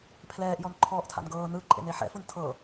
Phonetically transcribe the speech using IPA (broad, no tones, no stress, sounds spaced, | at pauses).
pʰ l ɛː ʔ j ɔ n ǃʰ ɔː ʔ tʰ a̰ n ɡ ɤː n ɯ ǃʼ ḛ n e ħ ɛ̰ f u n tʰ ɤ